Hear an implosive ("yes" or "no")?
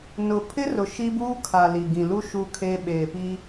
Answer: yes